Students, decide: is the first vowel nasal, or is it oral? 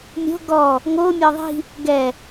oral